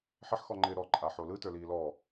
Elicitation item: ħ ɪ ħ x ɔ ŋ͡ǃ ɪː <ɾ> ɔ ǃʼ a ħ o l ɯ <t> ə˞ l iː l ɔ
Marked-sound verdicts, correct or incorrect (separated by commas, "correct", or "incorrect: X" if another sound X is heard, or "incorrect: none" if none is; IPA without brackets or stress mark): correct, correct